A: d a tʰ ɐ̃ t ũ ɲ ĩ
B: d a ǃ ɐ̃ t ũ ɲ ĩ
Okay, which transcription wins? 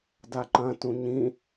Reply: B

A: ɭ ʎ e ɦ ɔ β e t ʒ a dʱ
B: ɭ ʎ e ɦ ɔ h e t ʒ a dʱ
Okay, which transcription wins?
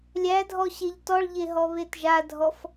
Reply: A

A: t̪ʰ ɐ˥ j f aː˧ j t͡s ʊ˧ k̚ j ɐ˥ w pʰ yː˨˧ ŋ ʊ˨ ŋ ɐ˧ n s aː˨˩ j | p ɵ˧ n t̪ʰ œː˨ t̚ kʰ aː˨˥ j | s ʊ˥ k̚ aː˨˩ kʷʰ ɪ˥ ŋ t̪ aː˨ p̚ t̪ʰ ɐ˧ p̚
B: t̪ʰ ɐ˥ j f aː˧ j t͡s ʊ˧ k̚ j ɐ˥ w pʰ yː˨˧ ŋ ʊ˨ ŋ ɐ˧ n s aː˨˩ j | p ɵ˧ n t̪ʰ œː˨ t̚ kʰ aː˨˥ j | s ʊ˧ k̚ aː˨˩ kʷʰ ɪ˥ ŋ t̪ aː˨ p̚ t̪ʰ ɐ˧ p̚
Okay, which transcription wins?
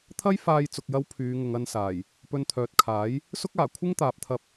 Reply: A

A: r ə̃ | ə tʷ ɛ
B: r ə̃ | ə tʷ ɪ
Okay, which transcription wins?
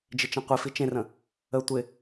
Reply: B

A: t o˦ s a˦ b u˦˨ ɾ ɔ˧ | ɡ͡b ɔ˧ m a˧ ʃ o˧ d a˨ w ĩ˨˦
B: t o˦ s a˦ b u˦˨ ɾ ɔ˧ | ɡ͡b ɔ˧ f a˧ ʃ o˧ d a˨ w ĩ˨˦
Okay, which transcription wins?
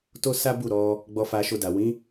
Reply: B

